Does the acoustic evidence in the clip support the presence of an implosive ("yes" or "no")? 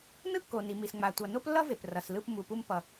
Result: no